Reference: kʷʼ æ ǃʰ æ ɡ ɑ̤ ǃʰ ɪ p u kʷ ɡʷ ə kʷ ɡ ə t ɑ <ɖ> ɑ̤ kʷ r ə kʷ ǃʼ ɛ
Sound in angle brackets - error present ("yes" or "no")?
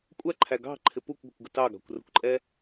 yes